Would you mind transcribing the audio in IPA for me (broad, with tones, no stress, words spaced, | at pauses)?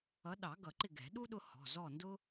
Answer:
ʌ˨˦ ɗɑ˨˩˦ ɡʌ˨˩˦ǃɪ˦˨ɡɛ̤˨˩˦ ɗu˥ ɗʊ˥hɔ̤˩˧˩ zɔ˦˨ndʊ˥